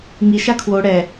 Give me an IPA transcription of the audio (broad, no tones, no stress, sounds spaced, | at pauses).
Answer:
ŋ i ʃ a kʰ w o ɽ ɛ